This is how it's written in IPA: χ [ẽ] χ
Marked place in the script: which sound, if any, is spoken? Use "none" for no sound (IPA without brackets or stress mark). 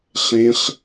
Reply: ẽ